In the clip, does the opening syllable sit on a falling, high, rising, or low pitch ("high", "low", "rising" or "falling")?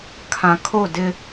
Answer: low